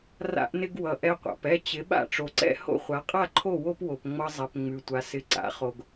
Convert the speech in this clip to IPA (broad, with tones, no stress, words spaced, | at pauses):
ra̰˧ʔnɪ˧ɡwʌ˩ ʔɛ˧qʷa̰˩pɛ˥˩ t͡ɕɪ˩˥ɓa̰˥˩ ʈ͡ʂo˩ǀɛ̰˥˩ ho̰˥˩χʷa˩˥qʼa˥˩ǃʰo˥˩ wo˥pwo˩pŋ͡mʌ˧zˤɛ˩p ŋ͡mʉ˩tʷa˩sɪ˩˥ ǀa̰˩˥χo˩ɡ